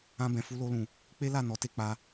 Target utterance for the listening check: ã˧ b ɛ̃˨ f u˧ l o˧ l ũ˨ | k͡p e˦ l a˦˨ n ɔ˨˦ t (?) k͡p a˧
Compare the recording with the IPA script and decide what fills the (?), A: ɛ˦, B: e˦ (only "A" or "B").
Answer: B